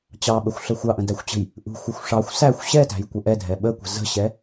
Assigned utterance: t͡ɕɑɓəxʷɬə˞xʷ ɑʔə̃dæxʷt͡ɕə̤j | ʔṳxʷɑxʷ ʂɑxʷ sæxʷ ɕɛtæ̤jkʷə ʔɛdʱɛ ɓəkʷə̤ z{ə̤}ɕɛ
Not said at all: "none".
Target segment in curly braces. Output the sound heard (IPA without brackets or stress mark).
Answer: ə̤